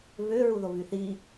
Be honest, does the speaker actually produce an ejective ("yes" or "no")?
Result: no